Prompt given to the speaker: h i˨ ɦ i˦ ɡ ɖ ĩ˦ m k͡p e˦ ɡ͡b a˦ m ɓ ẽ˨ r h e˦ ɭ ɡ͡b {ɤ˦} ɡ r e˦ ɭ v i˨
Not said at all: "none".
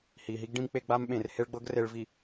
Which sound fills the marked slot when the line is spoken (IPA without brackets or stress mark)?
ɤ˦